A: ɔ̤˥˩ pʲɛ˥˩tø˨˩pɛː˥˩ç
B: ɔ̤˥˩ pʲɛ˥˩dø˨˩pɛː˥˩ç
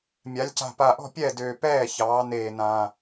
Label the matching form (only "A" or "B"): B